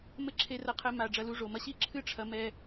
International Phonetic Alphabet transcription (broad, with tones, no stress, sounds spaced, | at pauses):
m ɘ˦ ǁʰ e˧ r ɐ˧ qʰ ɘ˧ m a˨ ɖ͡ʐ ɐ˧ l u˧ ʐ o˨ m ɐ˧ ɕ i˦˨ ǁʰ ɨ˦ ʈ͡ʂʰ ɐ˧ m ɛ˧